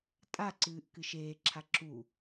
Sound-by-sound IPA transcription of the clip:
tʼ a ǀ ɨː ʔ k ɨ ʃ eː ǁʰ a ǁ u

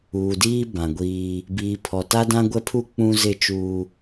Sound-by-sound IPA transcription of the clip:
uː˨ d iː˦ b ã˨ ɡʷ iː˦ | b iː˨ pʰ ɔ˨ t a˦ d ã˦ ɡʷ ɛ˦ pʰ u˦ k͡p ũ˦ z ɪ˦˨ t͡ʃ uː˦

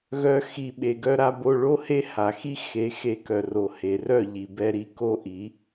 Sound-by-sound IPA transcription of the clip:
ɣ œ˧ x i˨ ɓ e˨ ɡ œ˧ ɾ a˧ b o˧ ɭ o˦ h e˦ h a˨ x i˦ x e˨˦ x e˧ k œ˨ r o˨ h e˨ r œ˦˨ ʎ i˨ b ɛ˧ ɾ i˧ k o˦ ʔ i˨˦

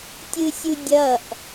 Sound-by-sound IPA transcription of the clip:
tʲ ɯ sʲ u dʲ ʌ ʔ

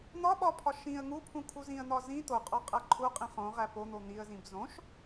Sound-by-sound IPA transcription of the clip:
n̪ ɒ ɓ ɒ pʰ ɒ ʃ ĩ ə̯ ŋ u pʰ ũ kʰ u z ĩ ə̯ n̪ ɒ z ĩ t̪ o qʼ ɒ qʼ æ ǃʰ u qʼ ĩ χ õ ʁ æ p o n̪ o n̪ i ə̯ z ĩ b z õ ʃ

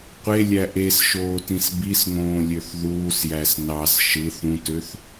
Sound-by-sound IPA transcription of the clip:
qʷ e lʲ æ ʔ e s ʃ oː t ĩ s b i s ŋ õː lʲ ø θ ð uː s j æ s n ɑ s ʃ ɯ θ ũ t ø θ

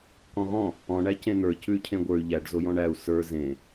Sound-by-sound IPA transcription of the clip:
k ɔ̃ ɣ ɔ̃ | ɔ̃ ɳ æ c ẽ n̪ ə˞ c ʉ y̯ cʰ ẽ ɡʷ ə˞ y̯ ʎ æ ɖ z o j ɔ̃ ɳ æ u̯ s ə˞ z ẽ

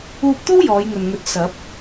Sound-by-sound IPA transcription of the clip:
uː˧ p̚ t̪ o˥ w j ɔː˨˧ j ŋ ɵ˨ n ŋ ɵ˨˥ t̚ s ɐ˨˥ p̚

